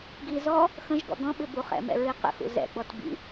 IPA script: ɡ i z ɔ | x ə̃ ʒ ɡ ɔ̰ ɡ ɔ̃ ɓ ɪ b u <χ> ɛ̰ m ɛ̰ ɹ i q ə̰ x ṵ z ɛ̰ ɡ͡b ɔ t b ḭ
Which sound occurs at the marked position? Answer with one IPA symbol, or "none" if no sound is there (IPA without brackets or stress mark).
χ